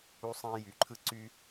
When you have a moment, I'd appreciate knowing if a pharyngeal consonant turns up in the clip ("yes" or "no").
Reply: no